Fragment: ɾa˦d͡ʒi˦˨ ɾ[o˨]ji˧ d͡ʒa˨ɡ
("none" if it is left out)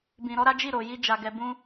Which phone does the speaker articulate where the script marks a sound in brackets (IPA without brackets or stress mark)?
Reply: o˨